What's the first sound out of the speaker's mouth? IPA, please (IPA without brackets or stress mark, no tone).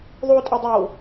ðˤ